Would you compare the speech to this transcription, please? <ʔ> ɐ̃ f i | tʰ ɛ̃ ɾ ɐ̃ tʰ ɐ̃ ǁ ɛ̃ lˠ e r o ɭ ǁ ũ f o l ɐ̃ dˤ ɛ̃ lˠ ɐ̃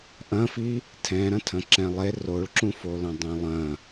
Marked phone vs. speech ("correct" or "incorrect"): correct